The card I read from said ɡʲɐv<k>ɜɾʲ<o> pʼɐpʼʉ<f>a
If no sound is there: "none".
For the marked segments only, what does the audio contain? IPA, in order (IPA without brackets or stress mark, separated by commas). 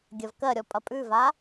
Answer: k, ɔ, v